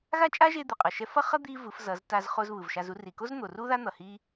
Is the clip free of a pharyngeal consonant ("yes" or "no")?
yes